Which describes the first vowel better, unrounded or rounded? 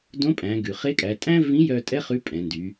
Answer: rounded